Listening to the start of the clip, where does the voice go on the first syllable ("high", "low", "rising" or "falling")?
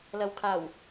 low